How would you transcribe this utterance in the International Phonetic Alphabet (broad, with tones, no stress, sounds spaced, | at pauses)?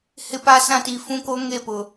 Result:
h ɪ˦ p a˦ s ã˦ t i˨ f ũ˦ k o˦ ŋ e˦˨ p ʊ˨